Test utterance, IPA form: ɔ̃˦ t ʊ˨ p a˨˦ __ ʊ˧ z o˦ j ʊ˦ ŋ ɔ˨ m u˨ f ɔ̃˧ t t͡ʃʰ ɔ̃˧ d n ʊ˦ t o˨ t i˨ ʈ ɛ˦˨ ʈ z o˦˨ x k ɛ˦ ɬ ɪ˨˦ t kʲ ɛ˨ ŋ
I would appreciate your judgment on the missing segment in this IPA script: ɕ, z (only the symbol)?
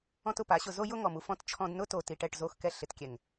ɕ